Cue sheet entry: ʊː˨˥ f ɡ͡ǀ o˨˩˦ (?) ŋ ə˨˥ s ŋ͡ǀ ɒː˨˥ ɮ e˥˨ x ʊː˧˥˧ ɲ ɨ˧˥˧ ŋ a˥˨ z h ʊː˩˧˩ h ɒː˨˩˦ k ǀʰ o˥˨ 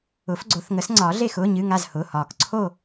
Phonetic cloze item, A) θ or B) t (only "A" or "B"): A